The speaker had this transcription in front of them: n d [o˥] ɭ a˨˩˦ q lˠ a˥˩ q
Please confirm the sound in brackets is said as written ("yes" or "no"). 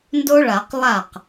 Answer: yes